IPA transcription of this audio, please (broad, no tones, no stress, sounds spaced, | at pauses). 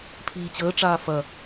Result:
pʰ iː t͡ɕ əː ʈ͡ʂ aː f ɐ